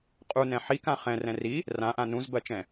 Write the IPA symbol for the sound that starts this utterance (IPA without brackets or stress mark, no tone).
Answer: qʼ